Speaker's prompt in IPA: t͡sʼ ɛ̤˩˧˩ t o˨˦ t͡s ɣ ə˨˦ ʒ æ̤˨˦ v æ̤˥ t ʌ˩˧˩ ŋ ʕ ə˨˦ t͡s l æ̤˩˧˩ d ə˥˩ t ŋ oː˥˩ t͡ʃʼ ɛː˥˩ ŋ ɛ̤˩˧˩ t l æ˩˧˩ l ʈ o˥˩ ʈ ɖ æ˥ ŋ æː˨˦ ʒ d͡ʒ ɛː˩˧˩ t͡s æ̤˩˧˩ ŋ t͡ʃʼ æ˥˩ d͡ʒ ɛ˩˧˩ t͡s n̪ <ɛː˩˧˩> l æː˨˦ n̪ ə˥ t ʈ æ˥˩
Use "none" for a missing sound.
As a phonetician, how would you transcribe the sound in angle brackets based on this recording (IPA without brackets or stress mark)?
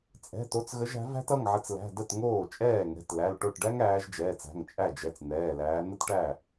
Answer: ɛː˩˧˩